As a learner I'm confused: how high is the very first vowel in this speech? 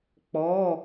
mid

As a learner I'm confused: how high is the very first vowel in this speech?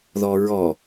mid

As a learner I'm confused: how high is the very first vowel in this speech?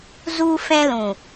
high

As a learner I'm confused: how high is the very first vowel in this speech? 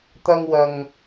low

